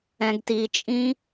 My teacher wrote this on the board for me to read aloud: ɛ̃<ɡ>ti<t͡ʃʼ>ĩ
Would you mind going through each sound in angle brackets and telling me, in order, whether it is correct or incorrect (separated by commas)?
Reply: correct, correct